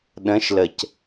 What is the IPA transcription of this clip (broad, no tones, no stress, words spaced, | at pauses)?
ɗə̃ʃləc